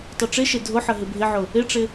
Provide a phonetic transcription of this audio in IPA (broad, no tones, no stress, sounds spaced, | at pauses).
tˤ u ʈ͡ʂ ɪ ʃ e dʱ ʊ ħ ə ɦ ɪ bʱ ɪ ʕ ʊ | ɪ ʈ͡ʂ ɪ